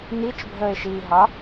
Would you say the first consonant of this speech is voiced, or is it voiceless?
voiced